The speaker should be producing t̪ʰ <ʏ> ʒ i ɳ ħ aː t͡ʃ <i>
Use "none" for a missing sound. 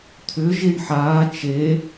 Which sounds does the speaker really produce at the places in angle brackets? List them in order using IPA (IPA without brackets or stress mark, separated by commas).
ʏ, e